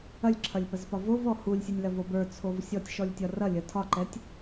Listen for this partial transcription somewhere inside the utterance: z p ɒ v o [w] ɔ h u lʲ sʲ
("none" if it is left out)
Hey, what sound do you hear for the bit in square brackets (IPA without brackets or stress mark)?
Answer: v